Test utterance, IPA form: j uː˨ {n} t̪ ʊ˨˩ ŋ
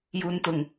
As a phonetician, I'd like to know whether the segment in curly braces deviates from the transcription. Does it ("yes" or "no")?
no